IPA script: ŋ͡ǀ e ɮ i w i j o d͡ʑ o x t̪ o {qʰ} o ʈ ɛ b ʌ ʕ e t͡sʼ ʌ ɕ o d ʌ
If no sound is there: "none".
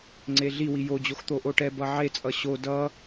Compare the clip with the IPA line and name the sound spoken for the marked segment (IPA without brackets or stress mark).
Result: ʔ